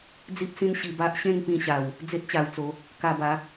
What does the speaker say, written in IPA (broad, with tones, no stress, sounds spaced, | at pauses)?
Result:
d͡z i˦ p̚ s ĩ˦ n ɕ i˧ b a˦ ʔ ɕ ẽ˥˧ ŋ p ĩ˧ ɕ a˨˩ w | d͡z e˦ t̚ t͡ɕ a˧ w t͡s o˨˦ | k a˧ b a˨˦